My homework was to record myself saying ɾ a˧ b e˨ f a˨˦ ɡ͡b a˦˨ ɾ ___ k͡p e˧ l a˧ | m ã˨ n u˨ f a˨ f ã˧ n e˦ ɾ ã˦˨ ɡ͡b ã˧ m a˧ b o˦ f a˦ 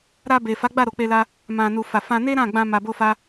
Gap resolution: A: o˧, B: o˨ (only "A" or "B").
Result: B